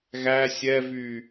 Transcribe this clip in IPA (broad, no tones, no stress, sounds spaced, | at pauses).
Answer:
ɣ æ sʲ ɛ v y